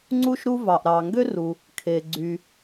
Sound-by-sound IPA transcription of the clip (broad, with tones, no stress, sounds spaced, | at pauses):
ŋ͡ǀ u˥ ʃ ɾ u˥ v ɑ˩ ʔ ɾ ɑ˩ ŋ ɡ ø˥ r u˩ | kʰ e˩ ɡ͡ǀ y˩